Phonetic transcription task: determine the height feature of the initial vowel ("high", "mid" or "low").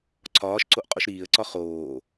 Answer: low